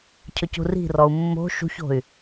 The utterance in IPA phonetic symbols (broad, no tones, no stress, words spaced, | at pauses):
cʰɵcṳri̤rɔu̯ mːo̤ ʃṳço̤y̯